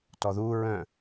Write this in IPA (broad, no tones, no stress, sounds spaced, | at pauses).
t ɔ ð u ɹ œ̃